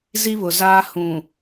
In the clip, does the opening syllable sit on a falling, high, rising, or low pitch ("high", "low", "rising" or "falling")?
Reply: high